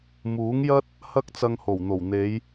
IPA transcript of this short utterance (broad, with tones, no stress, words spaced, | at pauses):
muː˨˥ŋjɐ˥t̚ | hɐ˥k̚t͡sɐ˧ŋho˨˩wn̪o˨˩w n̪e˨˧j